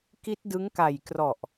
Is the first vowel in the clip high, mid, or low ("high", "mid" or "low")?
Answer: high